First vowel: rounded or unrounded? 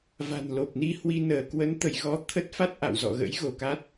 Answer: unrounded